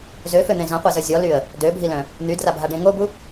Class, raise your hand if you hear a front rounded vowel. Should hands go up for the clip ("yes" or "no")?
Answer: yes